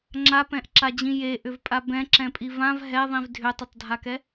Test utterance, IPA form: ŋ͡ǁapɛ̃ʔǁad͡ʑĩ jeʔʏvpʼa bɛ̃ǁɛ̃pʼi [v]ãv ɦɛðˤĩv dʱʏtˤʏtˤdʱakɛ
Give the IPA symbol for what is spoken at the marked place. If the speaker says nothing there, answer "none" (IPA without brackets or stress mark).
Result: v